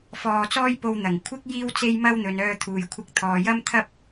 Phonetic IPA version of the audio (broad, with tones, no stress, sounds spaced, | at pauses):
f ɔː˧ t͡s ɔː˥ j p o˧ w n̪ ɐ˨˩ ŋ kʷʰ ɪ˥ k̚ j iː˥ w t͡s e˥ j m ɐ˥ w n̪ ɵ˨˧ n œː˧ t̪ʰ uː˨ j kʷʰ ɪ˧ k̚ t̪ʰ ɔː˨ j ɐ˥ m t̪ʰ ɐ˥ p̚